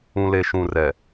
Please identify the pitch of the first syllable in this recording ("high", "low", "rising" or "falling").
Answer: low